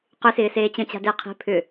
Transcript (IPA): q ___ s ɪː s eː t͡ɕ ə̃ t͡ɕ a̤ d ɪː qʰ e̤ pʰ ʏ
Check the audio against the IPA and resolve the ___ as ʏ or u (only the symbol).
ʏ